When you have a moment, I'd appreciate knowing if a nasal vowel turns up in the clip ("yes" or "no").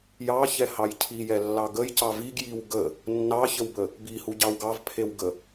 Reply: no